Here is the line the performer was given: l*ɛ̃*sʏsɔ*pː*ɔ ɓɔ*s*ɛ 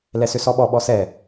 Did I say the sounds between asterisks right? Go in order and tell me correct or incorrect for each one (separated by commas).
incorrect, incorrect, correct